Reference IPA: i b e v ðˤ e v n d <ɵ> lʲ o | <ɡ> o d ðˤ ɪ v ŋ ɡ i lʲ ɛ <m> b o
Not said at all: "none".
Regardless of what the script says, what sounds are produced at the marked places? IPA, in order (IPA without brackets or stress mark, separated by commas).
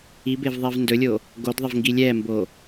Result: ɵ, ɡ, m